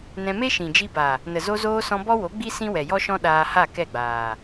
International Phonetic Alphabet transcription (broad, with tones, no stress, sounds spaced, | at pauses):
n ɛ̃˧ m e˦ ʃ ĩ˨ d͡ʒ i˧ b a˨ | n ə˨ z o˧ z oː˧ s ɔ̃˧ b ɔ˦ w o˨˦ ɡ͡b i˦ s ĩ˦ w ɛ˨ j ɔ˦ ʃ ɔ̃˦ ɗ aː˧ h a˦˨ k ɛ˦˨ ɡ͡b aː˨